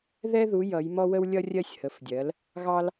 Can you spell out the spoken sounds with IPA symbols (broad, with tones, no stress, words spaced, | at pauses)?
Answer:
ðɛ˥ðu˨˥ jʌ˨˥jmɔ˥ wə˥wlʲʌ˥ rʲɜ˥sʲhə˨˥fdʲɜ˨˥l | ɣɑ˥l